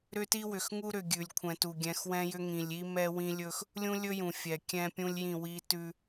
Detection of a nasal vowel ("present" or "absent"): present